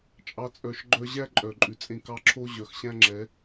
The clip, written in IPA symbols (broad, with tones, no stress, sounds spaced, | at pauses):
t͡ʃʼ ɑ˦ t͡sʼ œ˧ ʃ ɡ͡ǃ œ˧ ʑ æ˦ ǃʼ œ˨ ǃʼ ʉ˨ t͡sʼ ẽ˧ k ɑ˧ ǁʰ o˦ ʑ œ˨ x ɕ æ̃˦ ŋ͡ǁ ɛ˨˦